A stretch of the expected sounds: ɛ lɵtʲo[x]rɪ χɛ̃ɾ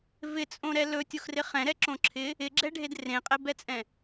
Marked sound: correct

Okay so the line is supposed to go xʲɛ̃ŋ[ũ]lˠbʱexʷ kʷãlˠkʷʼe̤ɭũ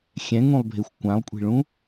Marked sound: correct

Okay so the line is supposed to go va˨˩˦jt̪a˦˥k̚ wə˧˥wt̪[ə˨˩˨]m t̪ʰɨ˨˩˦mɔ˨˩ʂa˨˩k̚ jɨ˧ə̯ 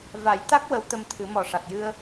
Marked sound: incorrect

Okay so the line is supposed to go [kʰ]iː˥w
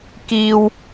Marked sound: incorrect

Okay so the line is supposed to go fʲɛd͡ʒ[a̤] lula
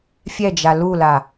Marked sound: incorrect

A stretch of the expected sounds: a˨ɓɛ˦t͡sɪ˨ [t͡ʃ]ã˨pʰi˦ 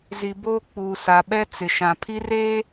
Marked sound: incorrect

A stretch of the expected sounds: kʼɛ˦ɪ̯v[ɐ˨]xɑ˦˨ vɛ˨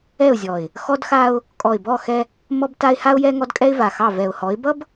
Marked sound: incorrect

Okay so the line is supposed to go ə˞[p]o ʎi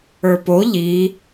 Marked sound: correct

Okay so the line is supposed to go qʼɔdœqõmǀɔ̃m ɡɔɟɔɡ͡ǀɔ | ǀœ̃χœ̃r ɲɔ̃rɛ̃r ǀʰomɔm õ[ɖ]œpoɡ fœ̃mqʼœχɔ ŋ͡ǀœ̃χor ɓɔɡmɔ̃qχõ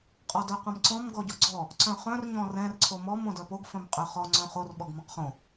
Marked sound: incorrect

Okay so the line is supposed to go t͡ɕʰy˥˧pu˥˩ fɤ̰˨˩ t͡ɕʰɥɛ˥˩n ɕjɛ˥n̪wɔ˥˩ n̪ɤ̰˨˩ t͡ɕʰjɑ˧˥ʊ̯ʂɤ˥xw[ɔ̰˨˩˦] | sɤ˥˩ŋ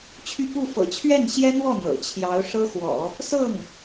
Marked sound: correct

